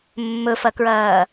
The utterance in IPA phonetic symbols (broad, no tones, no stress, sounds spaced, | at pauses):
mː ɵ f ɐ k ɹ ɐː